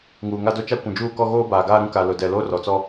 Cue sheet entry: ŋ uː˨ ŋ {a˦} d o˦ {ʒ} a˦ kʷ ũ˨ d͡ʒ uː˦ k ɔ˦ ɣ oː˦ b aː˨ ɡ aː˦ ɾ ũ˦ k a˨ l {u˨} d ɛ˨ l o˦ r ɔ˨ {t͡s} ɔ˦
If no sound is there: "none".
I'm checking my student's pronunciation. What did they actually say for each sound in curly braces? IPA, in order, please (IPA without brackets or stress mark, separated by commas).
a˦, t͡ʃ, ʊ˨, t͡s